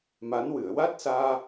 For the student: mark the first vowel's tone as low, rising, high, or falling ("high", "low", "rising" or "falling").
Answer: rising